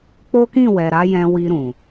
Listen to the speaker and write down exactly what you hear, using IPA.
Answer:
k͡po˦kĩ˦˨ wɛ˨ɾa˨˦jɛ̃˧wi˧ ɾũ˨

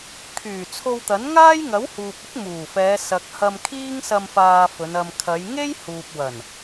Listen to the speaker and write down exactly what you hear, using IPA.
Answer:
kʰyː˨˩t͡sʰo˧w t̪ɐ˨˥n ŋaː˥jŋɐ˨˥whuː˨p̚ɪ˥k̚ muː˨˩fɛː˨˧ sɐ˨k̚hɐ˧m kʰiː˥ŋsɐ˧m faː˧fɵ˨˧n ɐ˨mkʰɐ˨˧jŋe˥j huː˨p̚wɐ˨˩n

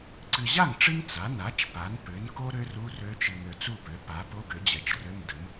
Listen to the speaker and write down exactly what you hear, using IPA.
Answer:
ǀɨ˨ʑa˥˩ŋ ʈ͡ʂɨ˥ŋ t͡sa˩˥ na˩˥t͡ʃ pa˩˥npø˩˥nko˥ ɾø˥ru˧˥˧rø˧˥t͡ʃɨ˨ŋ ø˨t͡su˥˩pø˩˥ pa˩˥po˧˥˧ɡ ø˩˥d͡ʑɛ˩˥t͡ʃrø˧˥˧m də˩˥m

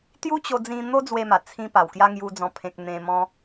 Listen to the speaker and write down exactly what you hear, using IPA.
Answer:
t̪ju˦t͡ɕo˧d͡zĩ˧ n̪o˦d͡zwe˧ma˨˩ t͡sʰĩ˧ pa˨˩wkja˦ ŋju˦d͡zɔ̃˥˧pʰẽ˦k̚ n̪ẽ˧mɔ̃˦

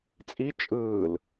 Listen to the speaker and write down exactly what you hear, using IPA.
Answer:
t͡sʼi t͡ʃʼɯːl

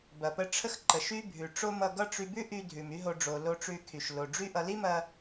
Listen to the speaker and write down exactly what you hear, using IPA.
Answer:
bɐ˩pə˧ʈ͡ʂʰə˥x ǃə˩ʃy˥ bʱʉ˩ʈ͡ʂo˥mʌ˧ɡʌ˥ ʈ͡ʂy˧bʉ˥ʔy˧dʱʉ˩m y˥ɦo˧ɖ͡ʐo˩ lo˧ʈ͡ʂʉ˧kʰy˩ʃ lo˩ɖ͡ʐy˥ʔʌ˧ li˥mɐ˧

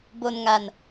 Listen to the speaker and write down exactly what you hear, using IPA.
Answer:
bo˧nŋa˧n

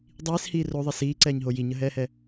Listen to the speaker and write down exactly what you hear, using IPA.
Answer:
dˤiːshiː roðˤe siːǀɛːɲɦo jiɲəɦɛːhɛ

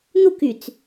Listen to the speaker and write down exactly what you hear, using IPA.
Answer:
n̪ukyt͡s

